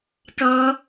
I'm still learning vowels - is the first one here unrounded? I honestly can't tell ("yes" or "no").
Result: yes